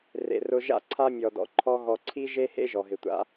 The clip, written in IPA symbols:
r ḛ˨ r ʊ˧ ʒ a̰˦ ǀʰ a˦ mʲ ɔ˨ d ɔ̰˨ ǃʰ ɔ˧ ɣ ɔ˨ ǀʰ i˦ ʒ e˦ h ḛ˦ ʒ ɔ˨ ɦ ɪ˨ tʷ a̰˦

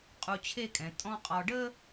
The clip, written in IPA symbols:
qʼ u˧ t͡ɕʰ e˥˧ kʼ ɛ̃˩˧ tʼ ɔ̃˥ qʼ ɔ˧ ɖ ə˥

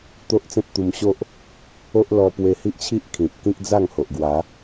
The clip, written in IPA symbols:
t̪ o˦ ʔ t͡s ẽ˦ p̚ t̪ u˧ m ɕ o˦ ʔ | o˦ ʔ l ɔ˧ p w e˧ h i˦ ʔ t͡ɕʰ i˦ ʔ kʰ ĩ˨ p̚ k ĩ˦ k̚ d͡z a˥˧ ŋ h o˨ ʔ ɡ w a˨˦

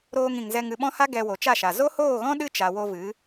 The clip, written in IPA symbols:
ɾ oː˧ ŋ ĩ˨ ŋ z ɛ˧ ŋ ɨ˧ ɓ ɔ̃˦ h a˦ ɡ ɛ˧ w o˨ t͡ʃ a˦˨ ʃ a˨ z o˦ h oː˦˨ ɣ ɔ̃˦ ɗ ɨ˦ t͡ʃ a˨ w o˧ v ɨ˨˦

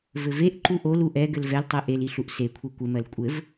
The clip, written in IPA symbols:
v ɘ v e ʔ ǃ u ʔ o l u ʔ ɛ ɡ ɘ l v ɛ l tˤ ɜ ʔ e l i ɬ u ʔ s e kʷʰ e kʷ ɘ m ɜ l kʷʼ ɘ v

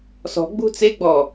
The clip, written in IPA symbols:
s ɔ̤ ɡ͡b ṳ t͡s e ɡ͡b ɔ

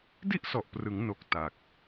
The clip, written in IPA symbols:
d i˥˩ ʔ s ɔ˨˩ ʔ p r ɯ˩˦ ŋ n o˨˩ k̚ t a˨˩ k̚

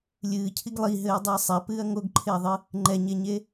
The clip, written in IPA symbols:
lʲ ɨː cʰ i ɡ lˠ i ɦ ɘː dˤ ɨ ɐ̯ sˤ ɛ p ɨː ɐ̯ ŋ o ɡ ǃʰ e ɐ̯ ðˤ ɨ | ŋ͡ǃ ɛ ɲ e ɲ e

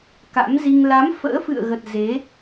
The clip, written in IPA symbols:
k a̰˧˥ m z i˧ ŋ l a˨˦ m f ə̰ː˧˥ f ɨ̰˧˨ ə̯ ɣ ə˨˩ t̚ z e˨˦

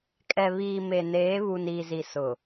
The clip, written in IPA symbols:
kʼ ɛ˨ β iː˨ m e˨ n eː˨˦ β uː˨ n iː˨ z i˨ s ʊ˨

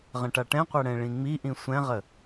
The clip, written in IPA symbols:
ʁ ə̃ ʈ a ʈ ɛ̃ qʷ ɛ ɽ ɛ̃ ɭ ĩ ŋ͡m i ʔ ĩ sʷ ɛ̃ ʁ ə

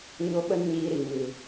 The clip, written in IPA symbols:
ɲ o˦ ɓ ə˦ n ɲ iː˧ ɾ i˨ m ɨ˨

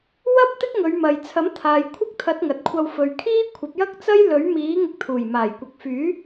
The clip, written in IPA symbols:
w ɐ˥ p̚ t̪ ɪ˥ k̚ ŋ ɵ˨˧ ɥ m ɐ˨ j t͡sʰ ɐ˨˥ m t̪ʰ aː˨ j kʷʰ ɐ˥ k̚ t̪ʰ ɐ˨˥ t̚ ŋ ɐ˨ t̚ kʷʰ ɐ˧ w f ɵ˨ ɥ kʰ iː˥ kʷʰ ɐ˨˥ p̚ j ɐ˥ k̚ t͡s ɐ˥ j l ɵ˨˥ ɥ m iː˨˥ ŋ ɪ˧ k̚ t̪ʰ uː˨˩ j m aː˨˩ j kʷ ɐ˨ k̚ f yː˨˥

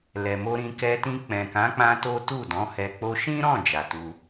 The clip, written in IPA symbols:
l ɛ˨ m o˧ ɾ ĩ˧ k ɛ˧ t ĩ˧ k͡p ɛ̃˨ k ã˨˦ k͡p ã˦ t o˦ t u˦˨ d ɔ̃˨˦ h ɛ˧ k͡p o˧ ʃ ĩ˦ ɾ ɔ̃˦˨ d͡ʒ a˨ t u˧

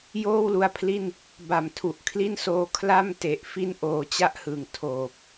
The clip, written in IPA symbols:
j oː˥˩ w l u˧ a̯ pʰ l i˥˩ n | b a˨˩ m tʰ u˨˩ ʔ kʰ l i˥˩ n s oː˧ kʰ l a˥˩ m t e˨˩ ʔ f i˥˩ n ʔ oː˧ t͡ɕ a˦˥ ʔ h ɯː˩˦ ŋ tʰ oː˨˩ p̚

